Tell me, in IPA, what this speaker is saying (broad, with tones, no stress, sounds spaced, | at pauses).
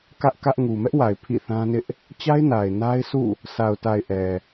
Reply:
k ä˦ ʔ k ä˦ ʔ ŋ u˨ m ɛ˦ ʔ w a˨ ɪ̯ pʰ ḭ˦˨ θ ã˦ n ɪ˦ ʔ | t͡ɕ a˦ ɪ̯ n a˨ ɪ̯ n a˦ ɪ̯ sʰ ṵ˦˨ | s a˨ ʊ̯ t a˨ ɪ̯ ʔ ɛ˨